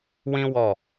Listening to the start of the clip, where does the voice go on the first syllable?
high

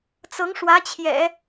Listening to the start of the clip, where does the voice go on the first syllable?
rising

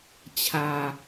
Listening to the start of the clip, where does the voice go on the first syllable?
low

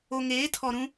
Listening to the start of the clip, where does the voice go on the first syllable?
low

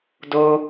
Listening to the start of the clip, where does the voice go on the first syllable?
high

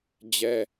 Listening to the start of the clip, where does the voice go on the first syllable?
high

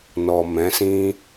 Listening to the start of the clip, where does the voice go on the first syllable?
low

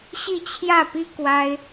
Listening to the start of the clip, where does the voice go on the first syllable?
falling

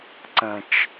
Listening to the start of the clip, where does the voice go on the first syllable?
low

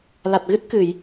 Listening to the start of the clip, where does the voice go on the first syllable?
low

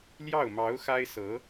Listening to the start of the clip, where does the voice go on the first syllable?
falling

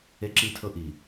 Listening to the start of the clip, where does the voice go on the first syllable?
high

